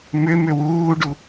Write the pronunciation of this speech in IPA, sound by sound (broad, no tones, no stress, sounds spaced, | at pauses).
m ʏ m ʏ w uː ɖ u